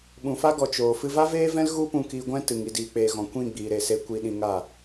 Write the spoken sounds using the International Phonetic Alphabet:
ɓ ũ˨ f a˦ ɡ ɔ˨ t͡ʃ oː˨ f ɨ˧ v a˦ v eː˦ v ɛ̃˦ l ɣ u˦ p ũ˧ k iː˧ ɡʷ ɛ̃˦ t ɨ˨ ŋ i˨ d iː˨ k͡p eː˨ ɣ ɔ̃˨ kʷ ĩ˦˨ ɡ͡b iː˨ ɾ e˨ s e˧ kʷ i˧ ɗ ĩ˧ ŋ a˦˨

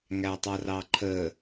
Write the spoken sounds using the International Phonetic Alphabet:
ŋ æ tˤ ʌ r ɑ ǃʰ ə

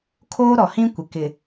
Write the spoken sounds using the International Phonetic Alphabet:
kʰ oː˦ ɾ ɔ˨ h ĩ˦ kʷ ɪ˨ k ɪ˨

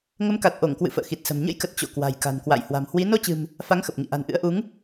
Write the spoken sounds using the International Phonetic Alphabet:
ŋ ə˨˦ m k a˨˩ t̚ ʔ o˧˩ ŋ k w ɨ̰˧˨ f ə̰ː˧˨ x i˨˩ t̚ s ə̤˨˩ m ɲ ə̰˧˥ j k ə˨˩ t̚ t͡ɕ o̰˧˨ k w a̤˨˩ j k a̤˨˩ n k w a̰˧˨ j h w a̤˨˩ m h w i˨˦ n o˧ t͡ɕ ɨ̤˨˩ m | f a˨˦ ŋ x ə˨˩ p̚ ŋ ḭ˧˨ ʔ a̤˨˩ n ʔ ɨ̰˧˥ ə̯ ʔ u˨˦ ŋ

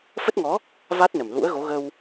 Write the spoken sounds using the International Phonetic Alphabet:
f ə˦˥ t̚ ŋ ɔ˨˦ | v a˦˥ t̚ n ə˨˩ m l ṵ˧˥ ə̯ ɣ o˨˦ ɣ ə˧ w

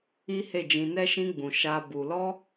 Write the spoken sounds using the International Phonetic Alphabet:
i˦ h e˦˨ d͡ʒ ĩ˧ n ɛ˦ ʃ ĩ˦ ɡ͡b ũ˧ ʃ a˦ b u˧ l ɔ˦

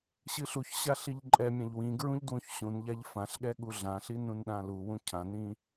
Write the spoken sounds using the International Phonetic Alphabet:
ɕ ɨ ɬ u ç ɕ a ɬ i ʎ ǃʼ ɛ mʲ ã ʎ w ĩ ɡ ɹ ũ ʎ d w ũ ç ɕ ũ n ʎ a ʎ f ã ɬ ɠ ɛ ɠ u ɮ ã ɬ i n ũ n ɗ ã l u w ũ cʰ ã n ĩ

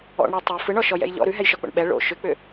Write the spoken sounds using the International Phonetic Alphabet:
ɔ̰ ɳ ɽ ɔ tˤ ʉ f ɯ ɳ ɔ ʃ ɔ j ɛ̰ j ʎ ɔ̰ ɾ ʉ ɦ ɛ j ʃ ɔ k͡p o̰ ɳ ɓ ɛ ɭ o̰ ʃ ʏ k͡p ʏ

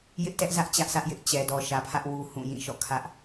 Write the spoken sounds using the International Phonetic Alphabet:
j ɪ˦ ʔ t ɛ˦ ʔ z ä˦ ʔ t͡ɕ ä˦ ʔ sʰ ä˦ ʔ j ɪ˦ ʔ t͡ɕ ɛ˨ d ɔ˨ ʃ ä˨ pʰ ä˦ ʔ w u˦ h ũ˦˨ j ĩ˦˨ ʃ ɔ̰˦˨ kʰ ä˦ ʔ

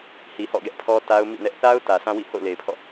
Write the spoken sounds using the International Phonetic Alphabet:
h i˨ h ɔ̰˦˨ ɡ ɛ˦ ʔ pʰ ɔ˦ t a˦ ʊ̯ m ḭ˦˨ n ɛ˦ ʔ θ a˦ ʊ̯ t ä˨ sʰ ã˦ w ḭ˦˨ h o̰˦˨ ʊ̯ l e˨ ɪ̯ pʰ ɔ̰˦˨

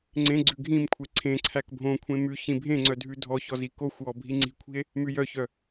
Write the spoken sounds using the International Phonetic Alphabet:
ŋ͡ǀ ẽ ɡ͡ǀ ʉ ɡʱ ĩ m kʷʰ e ǀʰ ẽ ǀʰ æ k bʱ õ kʷʰ ẽ m ʉ ç ĩ bʱ ẽ ŋ͡ǀ œ dʱ ʉ dʱ ɔ ç ɔ z i k o xʷ w ɔ bʱ i ŋ͡ǀ i̤ kʷʰ i̤ e̯ | m ʉ j œ ç œ

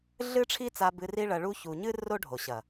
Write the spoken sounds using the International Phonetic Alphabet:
ɮ ɨ˦ ʈ͡ʂʰ i˦ t͡s a˧ b ɨ˧ r i˦ ɭ ɐ˧ ɭ u˦ ç u˧ ɲ ɨ˦ r o˦ ɖʱ o˨ ɕ ɐ˨

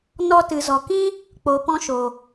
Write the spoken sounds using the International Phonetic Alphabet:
n ɔ˧ t ɨ˨ z ɔ˨ k ĩ˦ | k͡p o˨ p ɔ̃˧ ʃ o˨

